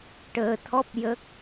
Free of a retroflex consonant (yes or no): no